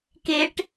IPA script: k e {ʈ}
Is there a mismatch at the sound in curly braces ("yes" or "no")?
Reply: no